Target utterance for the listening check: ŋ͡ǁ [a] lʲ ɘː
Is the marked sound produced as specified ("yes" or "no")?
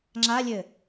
yes